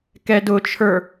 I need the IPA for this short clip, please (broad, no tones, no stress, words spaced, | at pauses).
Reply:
kɛdʊt͡ʃʰə˞